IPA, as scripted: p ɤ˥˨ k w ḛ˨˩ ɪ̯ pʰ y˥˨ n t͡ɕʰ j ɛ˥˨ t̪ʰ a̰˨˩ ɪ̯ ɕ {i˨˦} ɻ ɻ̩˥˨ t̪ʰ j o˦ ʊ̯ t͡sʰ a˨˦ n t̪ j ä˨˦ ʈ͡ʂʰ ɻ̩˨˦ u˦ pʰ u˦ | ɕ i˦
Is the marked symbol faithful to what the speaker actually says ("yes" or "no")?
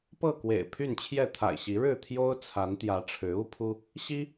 yes